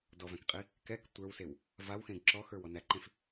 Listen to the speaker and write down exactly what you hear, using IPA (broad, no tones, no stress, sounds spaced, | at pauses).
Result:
d ɔ v æ̃ k qʼ i | k ɛ k tʷ ə˞ w s e w | v a w x ẽ ɡ ǁ ɔ x ə˞ w ɔ n æ ǃ ẽ f